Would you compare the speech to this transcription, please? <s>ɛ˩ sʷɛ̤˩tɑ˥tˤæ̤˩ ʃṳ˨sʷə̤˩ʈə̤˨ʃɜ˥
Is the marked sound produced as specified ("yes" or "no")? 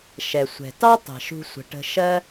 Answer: no